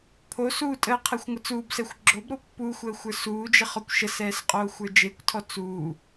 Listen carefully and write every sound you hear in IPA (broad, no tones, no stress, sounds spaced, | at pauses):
pʰ o s uː tʼ əː qʰ ɛ xʷ ŋʷ ə t͡s uː b s ɛ xʷ ɡ͡ǁ o b ɾ o pː uː xʷ əː xʷ ə˞ s uː d͡ʒ ə χ ɔ kʷ ʃ ə s ɛː s qʼ oː xʷ ə˞ d͡ʒ e kʷ tʰ ɔ t͡s uː